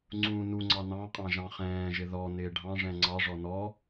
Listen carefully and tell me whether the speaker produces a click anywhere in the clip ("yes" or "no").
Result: yes